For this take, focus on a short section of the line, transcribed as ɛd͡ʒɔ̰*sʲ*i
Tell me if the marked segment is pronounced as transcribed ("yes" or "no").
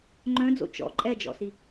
no